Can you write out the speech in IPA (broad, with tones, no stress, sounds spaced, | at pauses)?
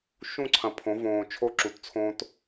ʃ ũ˦˨ ǀʰ ɐ̃˨ pʰ õ˨˦ v õː˨ t͡ʃʰ o˦ ǁ u˨ t t͡sʰ õː˦ t